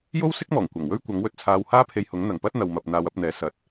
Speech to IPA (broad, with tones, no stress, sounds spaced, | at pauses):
j o˥ w s ɪ˥ k̚ m ɔː˨˩ ŋ kʷ ɐ˨˩ ŋ w ɵ˥ ɥ kʷ ɐ˨˥ ŋ w ɵ˨ t̚ t͡sʰ aː˧ w h aː˥ pʰ e˧ j h ʊ˨˥ ŋ n̪ ɐ˨ ŋ p ɐ˥ t̚ n̪ ɐ˧ w m ɐ˧ p̚ n̪ aː˧ w ɐ˨˥ p̚ n̪ ɛː˨˥ s ɐ˨ t̚